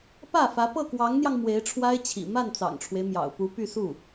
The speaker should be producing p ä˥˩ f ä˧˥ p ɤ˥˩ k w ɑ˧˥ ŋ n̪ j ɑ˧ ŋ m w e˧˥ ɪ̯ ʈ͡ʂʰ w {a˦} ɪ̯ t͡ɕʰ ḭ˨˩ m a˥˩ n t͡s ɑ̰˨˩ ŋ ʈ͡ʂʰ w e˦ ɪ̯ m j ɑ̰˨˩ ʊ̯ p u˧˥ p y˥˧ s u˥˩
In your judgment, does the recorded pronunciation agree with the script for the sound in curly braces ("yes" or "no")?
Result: no